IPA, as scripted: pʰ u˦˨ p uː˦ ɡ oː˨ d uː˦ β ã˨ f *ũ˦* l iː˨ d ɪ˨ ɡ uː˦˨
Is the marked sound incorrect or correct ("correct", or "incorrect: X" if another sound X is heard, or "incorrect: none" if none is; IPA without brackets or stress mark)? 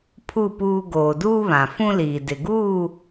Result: correct